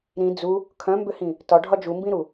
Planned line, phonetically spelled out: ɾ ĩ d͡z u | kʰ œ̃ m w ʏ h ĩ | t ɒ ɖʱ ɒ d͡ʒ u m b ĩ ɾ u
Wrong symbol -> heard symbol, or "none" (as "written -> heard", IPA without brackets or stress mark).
w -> b